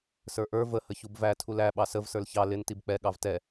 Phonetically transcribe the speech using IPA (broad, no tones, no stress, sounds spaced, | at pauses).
s ə˞ ʔ ə˞ v ə h ə ç u b v æ tʰ u l æ ɓ ɑ s ə v s ə˞ l ç ɑ l ɪ n t i b k͡p ɛ ɠ ɑ v t ɛ